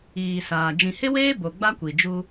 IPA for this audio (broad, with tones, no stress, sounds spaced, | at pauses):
iː˨ s aː˨ d͡ʒ ĩ˨ h ɪ˦ w eː˦ b o˨ ɡ͡b a˦ kʷ i˨ d͡ʒ u˦